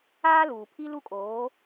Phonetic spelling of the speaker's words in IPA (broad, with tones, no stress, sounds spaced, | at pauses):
aː˦ l uː˨ pʰ i˦ l u˦ kʼ oː˨˦